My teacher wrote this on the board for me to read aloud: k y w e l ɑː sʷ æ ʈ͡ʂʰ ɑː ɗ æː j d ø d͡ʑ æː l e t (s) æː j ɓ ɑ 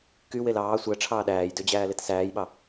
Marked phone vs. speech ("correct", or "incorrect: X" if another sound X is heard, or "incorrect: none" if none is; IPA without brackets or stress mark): correct